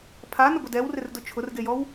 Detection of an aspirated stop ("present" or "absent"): present